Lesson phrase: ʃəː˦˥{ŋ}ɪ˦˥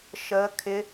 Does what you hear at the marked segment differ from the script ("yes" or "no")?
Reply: yes